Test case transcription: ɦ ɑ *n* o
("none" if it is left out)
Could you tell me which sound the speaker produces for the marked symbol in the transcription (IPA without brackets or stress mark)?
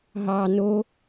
n